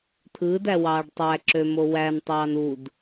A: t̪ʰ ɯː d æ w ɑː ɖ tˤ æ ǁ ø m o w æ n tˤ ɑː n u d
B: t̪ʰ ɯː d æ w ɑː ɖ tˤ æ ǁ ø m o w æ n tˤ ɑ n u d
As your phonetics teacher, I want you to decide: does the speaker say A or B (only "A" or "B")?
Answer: A